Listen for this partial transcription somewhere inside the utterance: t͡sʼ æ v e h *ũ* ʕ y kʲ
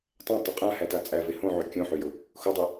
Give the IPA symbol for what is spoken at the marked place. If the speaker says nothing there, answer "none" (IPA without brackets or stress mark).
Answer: õ